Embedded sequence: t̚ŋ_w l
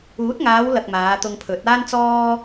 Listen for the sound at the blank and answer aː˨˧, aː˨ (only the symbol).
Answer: aː˨˧